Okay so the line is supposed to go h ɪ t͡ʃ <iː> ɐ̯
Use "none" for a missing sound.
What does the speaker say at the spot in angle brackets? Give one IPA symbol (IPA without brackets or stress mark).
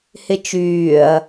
yː